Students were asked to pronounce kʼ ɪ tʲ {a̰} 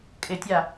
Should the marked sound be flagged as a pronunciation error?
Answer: yes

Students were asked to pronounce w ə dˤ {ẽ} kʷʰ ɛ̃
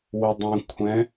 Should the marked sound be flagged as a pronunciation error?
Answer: no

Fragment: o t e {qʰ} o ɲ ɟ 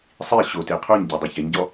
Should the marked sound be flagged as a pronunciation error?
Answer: no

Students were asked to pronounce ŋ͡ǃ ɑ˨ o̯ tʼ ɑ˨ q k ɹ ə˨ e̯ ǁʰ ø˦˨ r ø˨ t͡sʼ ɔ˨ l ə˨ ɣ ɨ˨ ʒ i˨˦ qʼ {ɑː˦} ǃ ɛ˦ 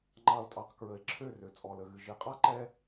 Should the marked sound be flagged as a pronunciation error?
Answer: yes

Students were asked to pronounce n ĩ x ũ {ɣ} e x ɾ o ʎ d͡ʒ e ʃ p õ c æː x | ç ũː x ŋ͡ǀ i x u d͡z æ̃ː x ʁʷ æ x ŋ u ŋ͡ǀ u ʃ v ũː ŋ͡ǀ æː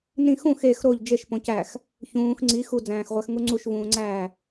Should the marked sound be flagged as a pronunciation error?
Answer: yes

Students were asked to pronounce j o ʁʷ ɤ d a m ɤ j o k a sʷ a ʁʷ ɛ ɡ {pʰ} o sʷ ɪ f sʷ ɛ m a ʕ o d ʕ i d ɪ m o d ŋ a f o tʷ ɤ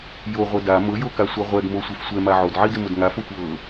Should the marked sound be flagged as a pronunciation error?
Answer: yes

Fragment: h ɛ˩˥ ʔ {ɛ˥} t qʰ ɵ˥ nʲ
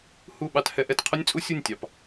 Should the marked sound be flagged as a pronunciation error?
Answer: yes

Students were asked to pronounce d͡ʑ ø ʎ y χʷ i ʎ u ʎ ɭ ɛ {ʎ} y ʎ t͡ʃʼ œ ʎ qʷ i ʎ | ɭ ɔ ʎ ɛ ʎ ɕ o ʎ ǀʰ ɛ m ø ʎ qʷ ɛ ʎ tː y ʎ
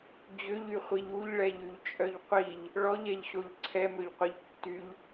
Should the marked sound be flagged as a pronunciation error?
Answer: no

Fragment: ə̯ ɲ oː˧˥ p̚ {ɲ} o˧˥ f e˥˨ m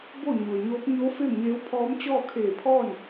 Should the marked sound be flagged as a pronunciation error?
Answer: no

